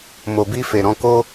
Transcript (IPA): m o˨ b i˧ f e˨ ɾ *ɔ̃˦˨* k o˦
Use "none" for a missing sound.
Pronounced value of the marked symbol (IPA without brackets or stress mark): ɔ̃˧